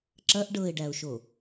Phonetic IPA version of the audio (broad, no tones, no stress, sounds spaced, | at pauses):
ǁ ɐ ʔ ɖ ɤ ɪ̯ ɖ æ ʊ̯ ʃ o